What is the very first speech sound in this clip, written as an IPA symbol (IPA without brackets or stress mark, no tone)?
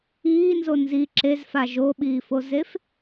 iː